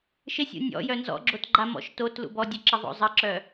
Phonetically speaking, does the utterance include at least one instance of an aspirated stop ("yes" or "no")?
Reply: no